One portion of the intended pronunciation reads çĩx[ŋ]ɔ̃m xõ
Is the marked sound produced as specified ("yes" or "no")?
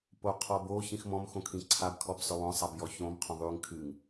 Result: no